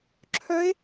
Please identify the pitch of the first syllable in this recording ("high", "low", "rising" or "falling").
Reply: rising